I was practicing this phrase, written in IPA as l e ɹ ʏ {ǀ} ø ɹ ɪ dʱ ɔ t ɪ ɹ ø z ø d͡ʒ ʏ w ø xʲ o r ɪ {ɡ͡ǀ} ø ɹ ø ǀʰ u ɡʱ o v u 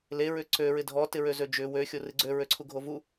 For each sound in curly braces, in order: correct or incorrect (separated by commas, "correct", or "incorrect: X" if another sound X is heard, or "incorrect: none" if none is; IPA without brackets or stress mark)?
correct, correct